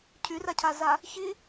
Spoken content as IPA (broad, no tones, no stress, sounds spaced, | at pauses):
cʰ y r a cʰ a z a | ç i